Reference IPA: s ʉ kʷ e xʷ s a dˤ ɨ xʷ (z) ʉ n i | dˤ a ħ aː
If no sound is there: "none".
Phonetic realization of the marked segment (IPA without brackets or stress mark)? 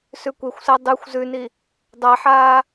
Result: z